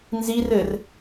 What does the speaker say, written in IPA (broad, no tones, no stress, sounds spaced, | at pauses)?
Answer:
n z i r ɘ r